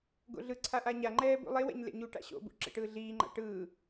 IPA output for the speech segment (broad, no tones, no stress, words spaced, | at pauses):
ɡo̰ɮɯǀʰa ʔaɲaŋ͡ǃɛː bṵlˠewɛ̰ɲ lḛɲuʈa̰ ɕo̰bṵ ǁḛʈɯːɮiːŋ͡ǃa̰ ʈɯː